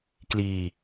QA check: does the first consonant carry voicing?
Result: no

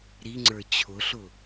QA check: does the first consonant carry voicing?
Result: yes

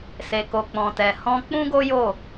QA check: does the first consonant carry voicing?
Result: no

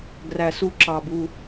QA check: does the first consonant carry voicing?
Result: yes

